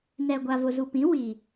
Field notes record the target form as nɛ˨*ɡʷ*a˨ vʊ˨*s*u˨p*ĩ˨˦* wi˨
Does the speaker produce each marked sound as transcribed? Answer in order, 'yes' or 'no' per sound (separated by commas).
yes, no, yes